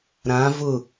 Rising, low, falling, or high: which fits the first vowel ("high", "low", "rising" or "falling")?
rising